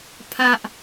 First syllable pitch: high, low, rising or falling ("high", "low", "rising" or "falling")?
high